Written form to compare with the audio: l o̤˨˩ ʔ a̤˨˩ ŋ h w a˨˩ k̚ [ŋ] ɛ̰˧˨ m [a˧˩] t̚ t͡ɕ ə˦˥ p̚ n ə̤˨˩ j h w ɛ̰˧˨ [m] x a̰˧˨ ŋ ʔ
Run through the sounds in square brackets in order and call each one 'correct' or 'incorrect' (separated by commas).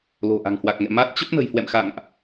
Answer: correct, incorrect, correct